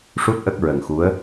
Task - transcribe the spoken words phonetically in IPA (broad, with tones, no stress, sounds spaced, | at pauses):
ʂ u˦˥ t̚ ʔ ə˦˥ k̚ ɹ ə˨˩ ŋ x u˧˥ ə̯